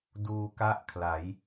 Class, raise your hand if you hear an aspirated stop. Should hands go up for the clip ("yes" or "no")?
yes